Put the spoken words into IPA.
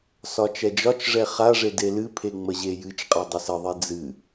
s ɒ t͡ʃ ɛ d͡ʒ ɒ t͡ʃ ʐ ɛ χ a ʐ e d e l ɨ pʰ e ŋ͡m ə ʑ e j ɨ t͡ʃ qʼ a dˤ ɛ s ə ðˤ e d͡z ɨ

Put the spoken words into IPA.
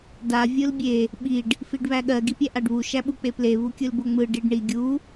d a vʲ ɯ l bʲ e | ɓ i ɖ | f i ɖ β æ ɠ ɜ ɡ i pʲ æ ʔ a ɖ β u ʃ æ ɓ u k͡p e p l e β u kʲ ɯ l b o ŋ͡m ɯ ɖ i ɖ ɳ i ɡʲ u

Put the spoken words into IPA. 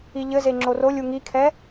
i ʎ ɘ z e ŋ͡ǁ o r o lʲ u ŋ i kʰ ɛ

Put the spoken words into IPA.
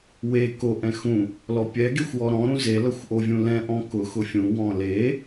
w e k o ʔ ɛ̃ x ũ | l ɔ pʲ ɛ ɡ e xʷ w ɔ ɾ ɔ̃ ɾ ũ z e l ʌ xʷ ʔ o vʲ ũ l ɛ̃ ʔ ɔ̃ k ʊ x ʊ fʲ ũ w ɔ̃ l e

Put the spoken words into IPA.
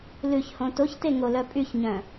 l ʉ ç h õ t o ç t e ŋ o l œ pʼ y ç ɲ œ̃

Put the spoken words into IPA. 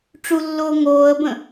ʈ͡ʂ u lː oː ŋ oː ə̯ b ə̃

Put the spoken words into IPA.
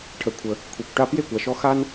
ʈʰ ə˩ kʷʰ ə˩ | kʷʰ e˩ kʷ ʈ a˧ p j e˥˩ kʷ a˩ ʃ ɔ˧ x a˥ n

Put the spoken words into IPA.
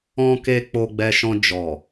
ɔ̃˧ k e˧ k͡p o˧ ɡ͡b ɛ˧ ʃ ɔ̃˧ d͡ʒ ɔ˨

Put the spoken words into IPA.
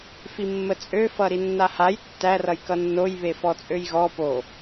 f i mː ə t͡sʼ ø f ʌ ɾ i nː a h a j tː æ r ʌ j k ʌ nː o j β e f ɔ t͡sʼ ø j ɣ ɔ p o

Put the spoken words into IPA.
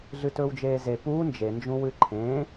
ɮ ɨ t ɵː w d͡ʒ eː z e p uː n d͡ʒ e n d͡ʒ ũ w ɨ ǃʰ ẽ

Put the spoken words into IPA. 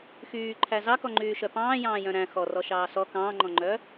x yː ǃʰ æ z ɑ k ɔ ŋ͡ǃ yː ʃ œ p ɑ̃ː j ɑ̃ː j œ̃ ɾ æ̃ x ɔ r ɔ ʃ ɑː s ɔ k ɑ̃ː ŋ͡ǃ ɔ̃ ŋ͡ǃ œː

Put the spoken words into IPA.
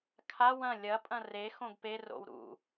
kʰ a w ɐ̃ lʲ ɐ pʼ ɐ̃ r e x õ ɡ p e r o̰ w ɾ ṵ

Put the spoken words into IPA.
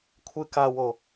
kʷʰ ɨ k a w o

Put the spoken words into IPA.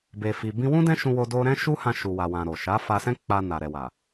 b e˨ f i˨ b ĩ˧ w ũ˦ d ɛ̃˦ ʃ ũ˧ w o˧ d o˧ ɾ ɛ̃˦ ʃ u˦ h ã˧ ʃ u˨ w a˨ w ã˨ ɾ o˨ ʃ a˨˦ f a˧ s ɛ̃˦ k͡p a˧ n a˨ ɾ ɛ˨ w a˨

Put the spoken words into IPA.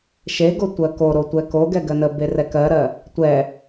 ʃ e ɡ o tʷ ɜ k o ɾ o tʷ ɛ k o ɡ ɛ ɡ ɜ n ə b e r ɛ k ɜ ɾ ɜ | tʷ ɛ

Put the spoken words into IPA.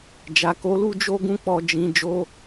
d͡ʒ a˨ k o˨˦ l u˦ d͡ʒ o˦ ɡ ũ˦ k͡p ɔ˧ d͡ʒ ĩ˧ d͡ʒ o˧

